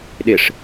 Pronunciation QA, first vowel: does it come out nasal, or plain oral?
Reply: oral